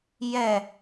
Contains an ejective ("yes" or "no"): no